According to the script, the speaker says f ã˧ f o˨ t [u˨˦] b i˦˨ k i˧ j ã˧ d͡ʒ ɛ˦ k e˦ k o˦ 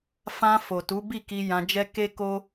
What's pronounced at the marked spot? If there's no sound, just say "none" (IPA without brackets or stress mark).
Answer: u˨˦